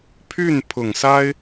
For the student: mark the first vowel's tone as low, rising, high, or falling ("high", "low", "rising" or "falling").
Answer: falling